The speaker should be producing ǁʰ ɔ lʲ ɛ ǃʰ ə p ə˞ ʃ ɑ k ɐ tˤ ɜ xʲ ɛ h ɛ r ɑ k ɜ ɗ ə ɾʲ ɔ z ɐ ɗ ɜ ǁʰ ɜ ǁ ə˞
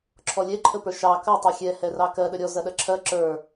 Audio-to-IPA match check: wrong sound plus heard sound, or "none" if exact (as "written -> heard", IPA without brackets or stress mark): none